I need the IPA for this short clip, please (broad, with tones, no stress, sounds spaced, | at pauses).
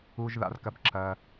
u˧ ʒ ð a̰˧ r k ɐ˧ b ǁ ɐ˧